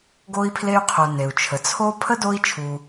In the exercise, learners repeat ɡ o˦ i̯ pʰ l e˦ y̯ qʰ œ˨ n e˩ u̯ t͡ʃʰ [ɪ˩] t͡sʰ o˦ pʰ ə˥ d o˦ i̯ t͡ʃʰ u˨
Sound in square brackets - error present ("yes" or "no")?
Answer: yes